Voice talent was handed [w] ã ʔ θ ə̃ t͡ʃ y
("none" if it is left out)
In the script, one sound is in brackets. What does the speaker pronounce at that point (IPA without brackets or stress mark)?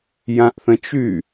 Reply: j